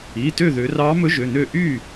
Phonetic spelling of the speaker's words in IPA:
i˩˧˩ t ø˥˨ ð ø˩˧ r ɑ˧˥ m ɵ˧˥ ʒ ø˩˧˩ n ø˥˨ ʔ y˥˨

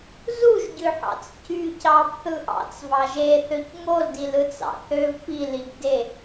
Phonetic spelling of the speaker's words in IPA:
z u ʒ ɟ ø ħ ɑ̰ t͡s c y c ɑ b θ ɯ ʔ ɑ̰ t͡s v ɑ ʒ e θ ø c ŋ o l d i l ɯ t͡s ɑ̰ θ ø v p i l i b d e

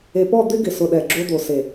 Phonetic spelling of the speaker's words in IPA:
e˨ p ɔ˦˨ d̪ ɪ˦ ɡ ɪ˨ s ʊ˨ ɗ ɛ˨ ɡ͡ǁ o˦ d̪ o˨ s e˨

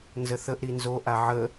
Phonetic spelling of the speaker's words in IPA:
n z ə θ ə ʔ ɾ i n z o ʔ a ʕ ə

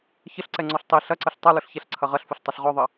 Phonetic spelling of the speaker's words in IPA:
ç ə ɬ ǀ ɛ ŋ͡ǀ ɔ ɬ tˤ i ɬ ɐ ǀ ə ɬ tˤ ɐ l ʊ ɬ ç ɛ ɬ ǀʰ ɐ ʁ ɐ ɬ f ʊ ɬ tˤ ɐ ɬ ʁ ɔ ðˤ ɐ

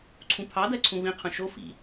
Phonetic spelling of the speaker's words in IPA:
ǀʰ ũ pʰ ɑ d ɜ ǀʰ ũ v ĩ qʰ ũ ʃ o f ḭ

